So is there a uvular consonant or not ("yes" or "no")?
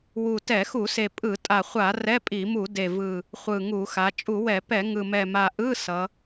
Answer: yes